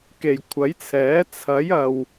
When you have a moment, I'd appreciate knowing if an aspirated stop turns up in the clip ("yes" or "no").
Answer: yes